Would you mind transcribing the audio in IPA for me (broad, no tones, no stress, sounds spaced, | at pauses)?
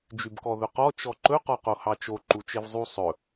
d͡ʒ y b k ɔ ð ɵ q ɔ t͡ʃ ɔ ǃ ɵ q ɔ q o h ɑ t͡ʃ o ǃ u t͡ʃ e v zˤ u sˤ ɵ